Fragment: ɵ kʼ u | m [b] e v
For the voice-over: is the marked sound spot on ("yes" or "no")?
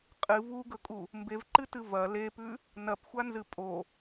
yes